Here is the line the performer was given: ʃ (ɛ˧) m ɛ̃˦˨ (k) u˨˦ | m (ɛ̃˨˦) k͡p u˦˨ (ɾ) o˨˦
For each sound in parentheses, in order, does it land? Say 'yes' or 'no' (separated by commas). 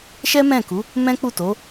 no, yes, no, no